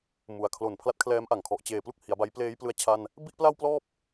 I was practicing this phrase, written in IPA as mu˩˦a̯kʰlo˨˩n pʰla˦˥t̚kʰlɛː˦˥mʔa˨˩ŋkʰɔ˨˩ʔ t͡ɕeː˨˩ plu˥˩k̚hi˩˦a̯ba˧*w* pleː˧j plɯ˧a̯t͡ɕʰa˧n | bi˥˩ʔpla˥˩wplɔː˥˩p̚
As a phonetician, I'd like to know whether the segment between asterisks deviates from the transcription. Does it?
yes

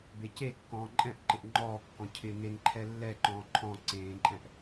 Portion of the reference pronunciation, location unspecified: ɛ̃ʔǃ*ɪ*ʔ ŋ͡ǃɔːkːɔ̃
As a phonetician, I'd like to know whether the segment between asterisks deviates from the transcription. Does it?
no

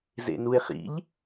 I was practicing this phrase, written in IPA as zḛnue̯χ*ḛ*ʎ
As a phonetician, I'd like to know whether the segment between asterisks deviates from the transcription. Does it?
yes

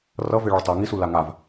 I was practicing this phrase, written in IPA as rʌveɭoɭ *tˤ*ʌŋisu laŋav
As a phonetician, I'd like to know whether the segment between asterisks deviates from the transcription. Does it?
no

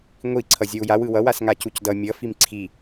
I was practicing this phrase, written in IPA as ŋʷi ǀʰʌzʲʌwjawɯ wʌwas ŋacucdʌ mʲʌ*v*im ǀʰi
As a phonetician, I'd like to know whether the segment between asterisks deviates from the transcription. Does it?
yes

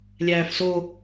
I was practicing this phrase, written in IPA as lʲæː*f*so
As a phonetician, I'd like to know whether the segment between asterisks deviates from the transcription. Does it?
no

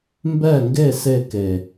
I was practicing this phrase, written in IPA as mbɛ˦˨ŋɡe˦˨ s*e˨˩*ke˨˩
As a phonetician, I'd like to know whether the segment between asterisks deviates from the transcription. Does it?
yes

